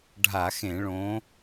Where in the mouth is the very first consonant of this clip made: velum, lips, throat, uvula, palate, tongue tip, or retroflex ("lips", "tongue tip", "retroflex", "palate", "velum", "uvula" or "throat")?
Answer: retroflex